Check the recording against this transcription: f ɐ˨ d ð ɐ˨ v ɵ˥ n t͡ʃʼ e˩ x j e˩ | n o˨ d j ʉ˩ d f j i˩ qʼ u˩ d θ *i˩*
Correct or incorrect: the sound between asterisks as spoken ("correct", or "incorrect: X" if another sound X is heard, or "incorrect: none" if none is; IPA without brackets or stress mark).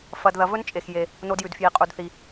correct